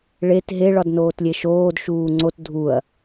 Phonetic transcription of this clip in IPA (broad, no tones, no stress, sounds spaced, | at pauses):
ɭ e t ɦ e ɭ ɒ d n oː t lʲ e ʃ oː d ʃ uː ŋ͡ǀ o t dʱ u ɐ̯